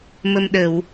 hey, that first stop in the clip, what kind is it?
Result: implosive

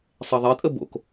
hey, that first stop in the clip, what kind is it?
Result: ejective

